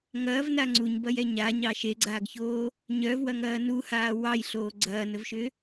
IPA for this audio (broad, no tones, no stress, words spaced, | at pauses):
ŋɐːvna ŋ͡ǀuɲbɐjɛ ɲaɲɑ ʃeɡ͡ǀaːɡçoː | ɲœvwɐŋɐː nuhaː wɑjɬoː ɡ͡ǀɐːnəvʃʏ